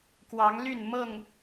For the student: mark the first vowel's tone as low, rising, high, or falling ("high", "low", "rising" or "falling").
rising